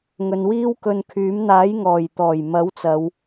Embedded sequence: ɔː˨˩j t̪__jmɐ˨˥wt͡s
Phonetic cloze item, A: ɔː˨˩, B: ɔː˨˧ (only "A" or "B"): A